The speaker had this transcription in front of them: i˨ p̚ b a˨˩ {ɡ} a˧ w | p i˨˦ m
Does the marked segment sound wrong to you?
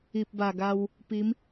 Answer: no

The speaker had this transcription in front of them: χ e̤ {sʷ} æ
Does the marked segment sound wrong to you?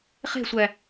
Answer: no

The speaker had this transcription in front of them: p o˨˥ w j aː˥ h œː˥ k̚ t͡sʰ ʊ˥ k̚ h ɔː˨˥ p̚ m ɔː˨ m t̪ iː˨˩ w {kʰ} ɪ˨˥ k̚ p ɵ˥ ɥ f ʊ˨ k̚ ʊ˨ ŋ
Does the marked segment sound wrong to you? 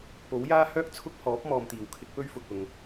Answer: no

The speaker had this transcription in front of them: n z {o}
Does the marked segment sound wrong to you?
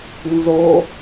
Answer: no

